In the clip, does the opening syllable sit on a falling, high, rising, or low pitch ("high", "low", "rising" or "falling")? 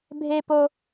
high